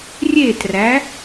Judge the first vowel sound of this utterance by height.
mid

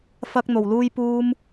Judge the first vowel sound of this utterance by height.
low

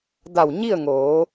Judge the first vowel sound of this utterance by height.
low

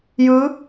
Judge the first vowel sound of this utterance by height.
high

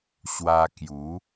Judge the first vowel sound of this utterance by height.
low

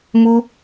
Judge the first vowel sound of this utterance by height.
high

